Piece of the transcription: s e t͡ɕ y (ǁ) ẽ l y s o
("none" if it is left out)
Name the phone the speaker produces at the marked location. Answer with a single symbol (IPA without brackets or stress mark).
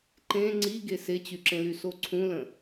ǁ